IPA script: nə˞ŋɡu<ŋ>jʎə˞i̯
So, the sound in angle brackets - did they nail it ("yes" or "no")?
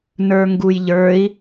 no